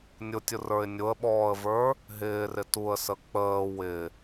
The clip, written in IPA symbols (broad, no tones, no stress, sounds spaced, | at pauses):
nʲ ʊ tʲ ʊ r ə˞ ɪ̯ nʲ ʊ ə̯ ɓ ɔː ə̯ v ə˞ | ɦ ɪː r ɪ t u ə̯ s ə k͡p əː w ɪ